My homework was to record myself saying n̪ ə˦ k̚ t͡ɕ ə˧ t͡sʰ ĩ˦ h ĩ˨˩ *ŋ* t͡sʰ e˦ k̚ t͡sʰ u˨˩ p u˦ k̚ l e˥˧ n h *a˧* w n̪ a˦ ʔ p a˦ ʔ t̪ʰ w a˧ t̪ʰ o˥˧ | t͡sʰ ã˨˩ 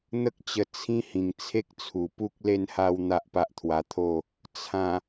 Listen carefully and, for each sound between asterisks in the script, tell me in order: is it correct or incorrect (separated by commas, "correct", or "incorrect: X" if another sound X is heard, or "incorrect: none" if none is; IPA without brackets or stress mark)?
correct, incorrect: a˥˧